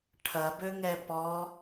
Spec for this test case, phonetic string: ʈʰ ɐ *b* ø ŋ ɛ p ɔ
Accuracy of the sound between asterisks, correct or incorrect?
correct